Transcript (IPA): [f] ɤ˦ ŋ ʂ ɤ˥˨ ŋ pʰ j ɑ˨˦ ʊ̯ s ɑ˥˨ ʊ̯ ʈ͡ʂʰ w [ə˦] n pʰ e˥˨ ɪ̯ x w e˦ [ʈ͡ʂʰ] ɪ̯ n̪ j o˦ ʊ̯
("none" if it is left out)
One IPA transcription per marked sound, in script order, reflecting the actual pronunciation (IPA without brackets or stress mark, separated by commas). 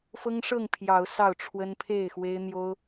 f, ə˦, none